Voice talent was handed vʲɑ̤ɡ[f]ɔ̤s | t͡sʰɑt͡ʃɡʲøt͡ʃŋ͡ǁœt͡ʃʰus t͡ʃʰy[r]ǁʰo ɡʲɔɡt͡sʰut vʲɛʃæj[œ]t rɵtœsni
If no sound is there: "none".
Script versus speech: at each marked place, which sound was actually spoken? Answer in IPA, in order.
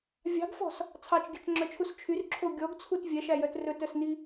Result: f, r, œ

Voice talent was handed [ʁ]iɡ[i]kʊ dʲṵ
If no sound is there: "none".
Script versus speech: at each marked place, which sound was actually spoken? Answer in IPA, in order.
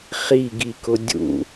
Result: χ, i

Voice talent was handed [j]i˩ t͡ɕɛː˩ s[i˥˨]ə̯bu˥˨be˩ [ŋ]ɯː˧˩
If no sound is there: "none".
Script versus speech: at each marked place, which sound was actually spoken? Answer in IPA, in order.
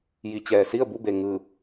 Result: j, i˥˨, ŋ

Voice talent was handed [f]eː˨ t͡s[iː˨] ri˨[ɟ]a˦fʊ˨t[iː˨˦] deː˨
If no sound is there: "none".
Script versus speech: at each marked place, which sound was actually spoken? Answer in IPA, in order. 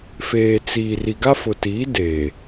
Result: f, iː˨, ɡ, iː˨˦

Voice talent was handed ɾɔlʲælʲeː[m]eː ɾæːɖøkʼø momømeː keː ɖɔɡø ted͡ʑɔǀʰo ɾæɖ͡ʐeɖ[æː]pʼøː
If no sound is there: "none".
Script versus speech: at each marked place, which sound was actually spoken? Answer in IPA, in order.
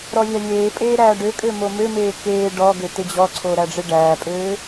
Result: pʼ, æː

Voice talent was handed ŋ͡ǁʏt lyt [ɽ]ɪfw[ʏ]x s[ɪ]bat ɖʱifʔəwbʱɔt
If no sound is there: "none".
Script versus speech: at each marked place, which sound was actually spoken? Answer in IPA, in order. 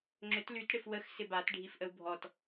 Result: ɽ, ə, ɪ

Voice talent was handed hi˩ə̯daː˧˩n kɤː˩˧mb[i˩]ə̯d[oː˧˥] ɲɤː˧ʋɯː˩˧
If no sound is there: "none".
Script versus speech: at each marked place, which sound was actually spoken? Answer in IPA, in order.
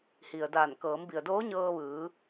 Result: i˩, oː˧˥

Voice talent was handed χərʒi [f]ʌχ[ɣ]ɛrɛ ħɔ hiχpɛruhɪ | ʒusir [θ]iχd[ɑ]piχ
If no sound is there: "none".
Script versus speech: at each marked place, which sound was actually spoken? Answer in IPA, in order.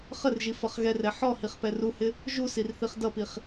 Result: f, ɣ, θ, ʌ

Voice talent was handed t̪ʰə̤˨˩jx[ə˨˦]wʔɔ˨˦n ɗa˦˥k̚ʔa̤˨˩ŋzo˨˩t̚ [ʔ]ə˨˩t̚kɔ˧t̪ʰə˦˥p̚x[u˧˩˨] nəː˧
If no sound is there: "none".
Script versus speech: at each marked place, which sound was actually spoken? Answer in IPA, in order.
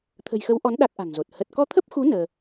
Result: ə˨˦, h, u˨˦

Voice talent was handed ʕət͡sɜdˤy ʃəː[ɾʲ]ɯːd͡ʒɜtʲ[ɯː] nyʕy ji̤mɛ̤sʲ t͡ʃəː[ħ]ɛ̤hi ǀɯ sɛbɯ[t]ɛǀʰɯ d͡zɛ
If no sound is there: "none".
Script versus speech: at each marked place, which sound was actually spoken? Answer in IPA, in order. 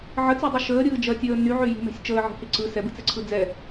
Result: ɾʲ, əː, ʕ, t͡s

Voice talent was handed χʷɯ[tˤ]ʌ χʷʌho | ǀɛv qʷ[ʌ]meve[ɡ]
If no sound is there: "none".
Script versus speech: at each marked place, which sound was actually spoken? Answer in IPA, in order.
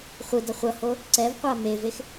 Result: d, a, x

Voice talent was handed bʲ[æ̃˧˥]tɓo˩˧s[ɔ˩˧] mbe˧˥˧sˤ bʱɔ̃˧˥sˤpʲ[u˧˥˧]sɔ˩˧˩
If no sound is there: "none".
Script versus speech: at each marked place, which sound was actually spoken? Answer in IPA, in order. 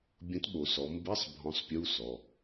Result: ə̃˧˥, ɔ˩˧, u˧˥˧

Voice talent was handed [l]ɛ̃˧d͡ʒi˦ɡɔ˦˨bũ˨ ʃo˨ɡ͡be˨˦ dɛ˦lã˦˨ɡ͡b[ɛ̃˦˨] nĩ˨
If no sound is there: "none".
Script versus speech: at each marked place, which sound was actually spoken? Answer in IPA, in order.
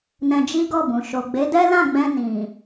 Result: n, ɛ̃˧

